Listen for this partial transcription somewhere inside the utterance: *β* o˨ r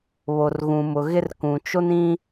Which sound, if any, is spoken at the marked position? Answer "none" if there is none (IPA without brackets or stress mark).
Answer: β